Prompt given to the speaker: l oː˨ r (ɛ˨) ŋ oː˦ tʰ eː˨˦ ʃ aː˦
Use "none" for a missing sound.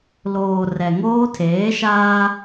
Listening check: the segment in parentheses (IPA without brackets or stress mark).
ɛ˨